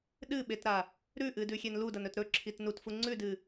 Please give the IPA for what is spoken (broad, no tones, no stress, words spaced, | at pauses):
ɗɨɓetɾa | ɾʉʔɨdʉxʲen ludɐnɵt ɾɵǁʰit nutfu ŋ͡ǀʉdɨ